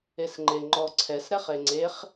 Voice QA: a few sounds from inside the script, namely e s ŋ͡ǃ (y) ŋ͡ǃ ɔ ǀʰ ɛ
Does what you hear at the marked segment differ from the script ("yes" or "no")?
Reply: yes